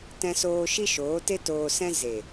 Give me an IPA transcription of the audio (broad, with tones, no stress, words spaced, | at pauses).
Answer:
tɛ̃˧soː˧ ʃi˦ʃoː˨˦te˦ toː˧sɛ̃˦ ze˨